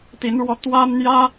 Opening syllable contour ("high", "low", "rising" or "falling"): rising